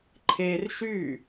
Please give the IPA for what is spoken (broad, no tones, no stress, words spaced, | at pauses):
ǃʰer ʃy